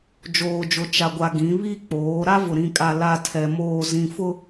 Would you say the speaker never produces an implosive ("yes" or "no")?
yes